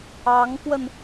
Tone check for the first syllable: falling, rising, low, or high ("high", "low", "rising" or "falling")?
rising